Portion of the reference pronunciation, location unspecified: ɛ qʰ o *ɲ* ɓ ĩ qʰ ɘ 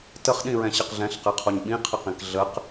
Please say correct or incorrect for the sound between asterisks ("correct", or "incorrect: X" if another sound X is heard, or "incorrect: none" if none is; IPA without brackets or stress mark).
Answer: correct